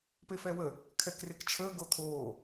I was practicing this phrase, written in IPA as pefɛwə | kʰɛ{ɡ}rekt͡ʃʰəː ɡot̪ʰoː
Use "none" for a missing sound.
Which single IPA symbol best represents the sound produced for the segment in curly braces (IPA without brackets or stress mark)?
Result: k